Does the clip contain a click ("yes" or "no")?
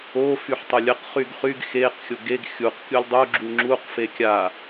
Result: yes